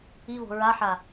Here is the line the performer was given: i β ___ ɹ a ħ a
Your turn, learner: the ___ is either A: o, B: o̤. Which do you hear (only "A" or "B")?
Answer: B